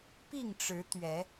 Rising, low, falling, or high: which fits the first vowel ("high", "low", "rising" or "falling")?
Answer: falling